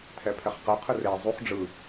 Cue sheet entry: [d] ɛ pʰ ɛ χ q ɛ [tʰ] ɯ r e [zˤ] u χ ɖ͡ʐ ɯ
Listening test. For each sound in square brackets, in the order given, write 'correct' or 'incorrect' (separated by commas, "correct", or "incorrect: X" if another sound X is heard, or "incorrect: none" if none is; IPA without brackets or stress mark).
incorrect: tʰ, incorrect: qʰ, correct